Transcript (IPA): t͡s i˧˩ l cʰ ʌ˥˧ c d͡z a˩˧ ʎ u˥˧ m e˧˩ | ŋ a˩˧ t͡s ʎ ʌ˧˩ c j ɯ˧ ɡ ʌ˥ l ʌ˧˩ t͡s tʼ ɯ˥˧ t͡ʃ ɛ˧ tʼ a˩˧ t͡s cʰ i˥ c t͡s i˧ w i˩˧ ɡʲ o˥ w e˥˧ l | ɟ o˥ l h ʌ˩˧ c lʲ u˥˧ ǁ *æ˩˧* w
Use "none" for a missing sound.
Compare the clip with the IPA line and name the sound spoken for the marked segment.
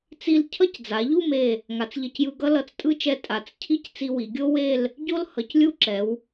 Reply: ɛ˩˧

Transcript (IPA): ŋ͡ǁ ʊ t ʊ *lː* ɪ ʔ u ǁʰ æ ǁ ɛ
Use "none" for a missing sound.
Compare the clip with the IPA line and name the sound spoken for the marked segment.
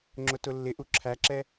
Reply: lː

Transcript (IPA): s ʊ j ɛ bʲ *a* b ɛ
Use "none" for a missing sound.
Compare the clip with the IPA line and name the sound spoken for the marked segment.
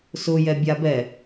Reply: a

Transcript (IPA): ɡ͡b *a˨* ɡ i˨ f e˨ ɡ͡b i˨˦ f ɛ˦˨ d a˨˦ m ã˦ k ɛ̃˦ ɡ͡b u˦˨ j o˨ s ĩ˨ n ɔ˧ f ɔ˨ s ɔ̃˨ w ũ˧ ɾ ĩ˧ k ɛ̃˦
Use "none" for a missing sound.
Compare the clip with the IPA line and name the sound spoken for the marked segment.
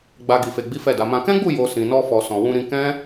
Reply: a˨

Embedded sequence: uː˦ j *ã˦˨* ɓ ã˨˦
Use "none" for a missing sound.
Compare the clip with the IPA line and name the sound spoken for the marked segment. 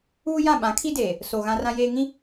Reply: ã˦˨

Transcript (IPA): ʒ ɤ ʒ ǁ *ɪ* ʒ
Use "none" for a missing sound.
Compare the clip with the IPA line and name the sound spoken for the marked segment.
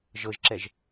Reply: ɛ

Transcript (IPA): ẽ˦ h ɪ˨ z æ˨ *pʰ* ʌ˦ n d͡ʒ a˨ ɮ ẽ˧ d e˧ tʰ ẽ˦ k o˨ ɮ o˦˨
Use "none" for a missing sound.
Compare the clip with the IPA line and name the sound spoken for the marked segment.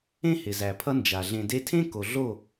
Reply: pʰ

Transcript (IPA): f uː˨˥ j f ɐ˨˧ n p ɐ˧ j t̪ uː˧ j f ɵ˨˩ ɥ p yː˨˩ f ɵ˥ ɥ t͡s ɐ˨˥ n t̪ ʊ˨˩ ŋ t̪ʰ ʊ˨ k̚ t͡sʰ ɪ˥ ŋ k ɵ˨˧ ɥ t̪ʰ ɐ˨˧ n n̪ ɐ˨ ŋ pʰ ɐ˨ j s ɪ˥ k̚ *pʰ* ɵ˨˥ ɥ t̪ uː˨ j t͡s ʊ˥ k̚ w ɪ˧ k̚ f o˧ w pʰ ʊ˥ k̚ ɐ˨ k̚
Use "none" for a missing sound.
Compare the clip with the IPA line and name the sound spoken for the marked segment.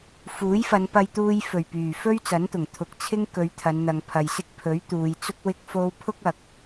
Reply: pʰ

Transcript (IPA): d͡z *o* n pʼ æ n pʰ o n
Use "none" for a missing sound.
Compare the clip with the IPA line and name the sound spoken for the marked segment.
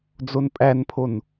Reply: o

